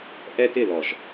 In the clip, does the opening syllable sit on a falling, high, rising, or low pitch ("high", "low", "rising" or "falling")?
high